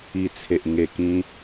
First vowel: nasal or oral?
oral